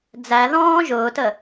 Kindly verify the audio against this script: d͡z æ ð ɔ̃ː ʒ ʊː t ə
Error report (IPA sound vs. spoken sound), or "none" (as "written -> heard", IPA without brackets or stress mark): none